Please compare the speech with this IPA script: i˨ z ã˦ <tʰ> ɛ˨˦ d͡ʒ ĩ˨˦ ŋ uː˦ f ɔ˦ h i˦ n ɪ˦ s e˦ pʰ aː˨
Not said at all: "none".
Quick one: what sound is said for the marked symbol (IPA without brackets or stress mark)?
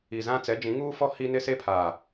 t͡s